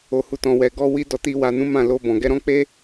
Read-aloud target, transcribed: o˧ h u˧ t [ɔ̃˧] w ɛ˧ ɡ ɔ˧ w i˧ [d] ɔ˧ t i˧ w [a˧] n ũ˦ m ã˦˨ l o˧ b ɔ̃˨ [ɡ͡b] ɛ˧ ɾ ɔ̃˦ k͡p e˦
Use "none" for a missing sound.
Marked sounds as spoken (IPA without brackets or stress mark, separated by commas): ɔ̃˧, d, a˧, ɡ